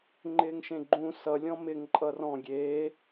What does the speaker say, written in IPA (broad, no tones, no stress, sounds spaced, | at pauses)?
ŋ͡ǃ ɪː ŋ ʃ ẽ ɡ͡ǃ ũ s ʌ lʲ ɔ̃ m ɪ ŋ ǃʼ ʌ r ɔ̃ ɡʲ eː